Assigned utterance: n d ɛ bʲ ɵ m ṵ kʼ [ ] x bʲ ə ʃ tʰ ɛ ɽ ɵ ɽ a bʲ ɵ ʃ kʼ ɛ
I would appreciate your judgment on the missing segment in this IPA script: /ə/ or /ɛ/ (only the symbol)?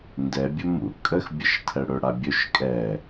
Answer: ə